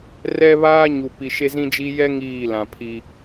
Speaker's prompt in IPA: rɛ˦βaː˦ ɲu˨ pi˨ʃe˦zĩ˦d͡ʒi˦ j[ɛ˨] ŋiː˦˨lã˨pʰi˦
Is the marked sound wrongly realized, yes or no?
yes